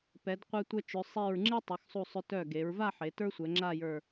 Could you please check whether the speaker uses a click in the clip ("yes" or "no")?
yes